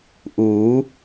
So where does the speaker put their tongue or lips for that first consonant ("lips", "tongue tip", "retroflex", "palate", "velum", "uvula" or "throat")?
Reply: throat